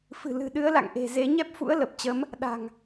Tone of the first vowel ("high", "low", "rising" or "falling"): low